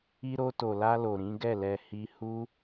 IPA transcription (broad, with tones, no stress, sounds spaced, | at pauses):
i˧ ɾ o˧ t o˨ l a˧ l o˨ ɾ ĩ˨˦ ɡ ɛ˦˨ l ɛ˧ h i˧ h u˦